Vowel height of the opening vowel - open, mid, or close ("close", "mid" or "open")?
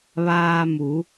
open